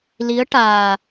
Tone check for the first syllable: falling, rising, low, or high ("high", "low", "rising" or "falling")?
rising